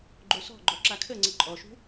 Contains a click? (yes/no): yes